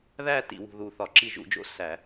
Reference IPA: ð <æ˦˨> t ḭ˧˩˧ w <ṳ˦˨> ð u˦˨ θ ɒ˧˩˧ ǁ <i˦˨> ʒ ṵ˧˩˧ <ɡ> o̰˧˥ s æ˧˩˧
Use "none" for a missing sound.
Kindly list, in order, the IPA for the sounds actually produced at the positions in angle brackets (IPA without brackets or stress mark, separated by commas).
æ˦˨, ṳ˦˨, i˦˨, d͡ʒ